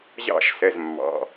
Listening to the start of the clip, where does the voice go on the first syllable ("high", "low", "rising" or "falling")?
falling